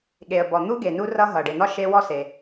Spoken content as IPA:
ɠ e˩ ə̯ b ɔ˩ n̪ u˥ ɡ e˩ n u˥ r ʌ˥ ɦ ʌ˩ ɖ e˩ n̪ ɒ˥ ʃ e˥ w ɔ˥ s e˩

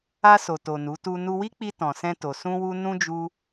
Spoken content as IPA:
a˧ s o˨ t o˨ n u˨˦ t u˧ n u˧ w i˦ k͡p i˧ t ɔ̃˨ s ɛ̃˧ t o˨ s ũ˧ w u˧ n ũ˦ d͡ʒ u˧

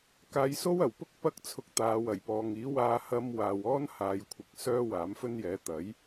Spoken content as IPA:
k aː˧ j s o˥ w ɐ˨˩ w p ʊ˥ k̚ p ɐ˥ k̚ t͡sʰ ʊ˧ k̚ t̪ aː˨˧ w ɐ˨˩ j p ɔː˨ ŋ iː˨˥ w aː˧ h ɐ˧ m w aː˨ w ɔː˥ n h aː˨ j kʷʰ ɪ˨ k̚ s œː˥ w aː˨˥ m f ɵ˥ n j ɛː˨˥ t̪ ɐ˨˥ j

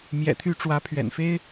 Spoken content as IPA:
m j ɛ̰˨˩ t̪ʰ y˥˩ ʈ͡ʂ w ä˧˥ pʰ ɥ ɛ̰˨˩ n f e˥ ɪ̯

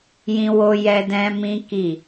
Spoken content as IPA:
j ĩ˦ w o˦ j ɛ˦ d ɛ̃˦ m ĩ˦ k i˦˨

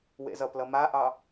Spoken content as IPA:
w ḛ z ʌ p l ʌ m a ʔ ɑ

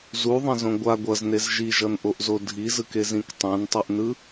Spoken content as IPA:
z u ðˤ ẽ z õ ɡʷ a ɡʷ ʌ z n e z ʒ i ʒ ʌ n ʔ o ʔ z o dʱ i z ɯ k e z ĩ k tˤ ɛ̃ n tˤ u ʔ n ɯ

